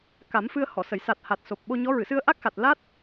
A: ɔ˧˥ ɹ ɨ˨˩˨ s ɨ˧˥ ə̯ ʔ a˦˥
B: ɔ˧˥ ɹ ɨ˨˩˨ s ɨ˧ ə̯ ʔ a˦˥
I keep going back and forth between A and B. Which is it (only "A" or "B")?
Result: B